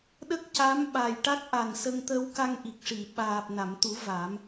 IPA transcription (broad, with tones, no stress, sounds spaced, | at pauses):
ɗ ə˦˥ k̚ c a˧˥ m ɓ a˨˩ j ʈ a˦˥ k̚ ʔ a˨˩ n s ə˧ ŋ t̪ ə˧ w k a˧ ŋ ʔ i˨˩ k̚ ʂ i˨˩˨ ɓ aː˨˩ p̚ n a˨˩˨ m t̪ u˨˩˦ v a˨˩˦ m